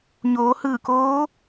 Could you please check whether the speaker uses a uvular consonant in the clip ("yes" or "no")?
no